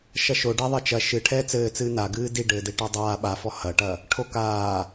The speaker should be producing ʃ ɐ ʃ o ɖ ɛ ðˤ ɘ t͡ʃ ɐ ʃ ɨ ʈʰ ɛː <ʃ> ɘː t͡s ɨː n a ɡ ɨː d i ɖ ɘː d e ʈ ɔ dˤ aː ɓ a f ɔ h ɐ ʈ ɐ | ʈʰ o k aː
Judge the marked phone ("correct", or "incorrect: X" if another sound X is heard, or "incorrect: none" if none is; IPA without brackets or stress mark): incorrect: t͡s